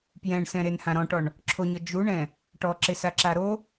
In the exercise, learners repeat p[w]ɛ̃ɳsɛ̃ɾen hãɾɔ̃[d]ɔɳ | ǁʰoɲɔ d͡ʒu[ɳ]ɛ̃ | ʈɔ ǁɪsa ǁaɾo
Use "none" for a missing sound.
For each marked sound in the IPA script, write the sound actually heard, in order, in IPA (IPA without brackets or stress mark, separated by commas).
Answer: j, ʈ, ɳ